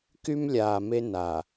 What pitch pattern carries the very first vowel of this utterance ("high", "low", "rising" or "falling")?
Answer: high